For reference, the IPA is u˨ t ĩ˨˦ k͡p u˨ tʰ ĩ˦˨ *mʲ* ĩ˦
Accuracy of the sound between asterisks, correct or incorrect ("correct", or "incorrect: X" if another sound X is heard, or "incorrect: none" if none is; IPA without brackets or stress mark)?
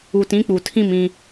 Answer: incorrect: m